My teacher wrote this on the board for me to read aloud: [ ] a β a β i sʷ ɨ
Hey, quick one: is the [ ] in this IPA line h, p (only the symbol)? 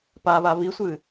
p